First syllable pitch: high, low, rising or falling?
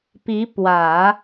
rising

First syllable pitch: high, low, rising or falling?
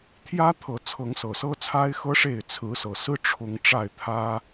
high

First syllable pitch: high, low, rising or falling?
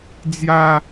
high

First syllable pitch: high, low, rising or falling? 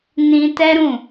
high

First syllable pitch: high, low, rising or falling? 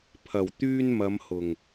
low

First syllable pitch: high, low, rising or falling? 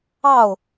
falling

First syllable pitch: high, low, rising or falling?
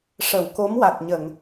low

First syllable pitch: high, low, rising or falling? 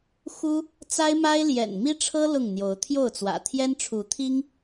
high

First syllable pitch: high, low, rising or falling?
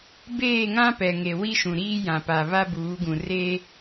falling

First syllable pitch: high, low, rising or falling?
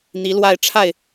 rising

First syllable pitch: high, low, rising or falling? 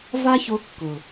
high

